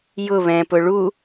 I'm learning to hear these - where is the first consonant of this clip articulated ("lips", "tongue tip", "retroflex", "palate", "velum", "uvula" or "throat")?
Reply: palate